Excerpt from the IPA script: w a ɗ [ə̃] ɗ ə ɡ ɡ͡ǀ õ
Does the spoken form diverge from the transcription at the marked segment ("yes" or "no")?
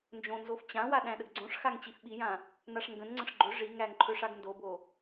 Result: yes